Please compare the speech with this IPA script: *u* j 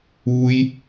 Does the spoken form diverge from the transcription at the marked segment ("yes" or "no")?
no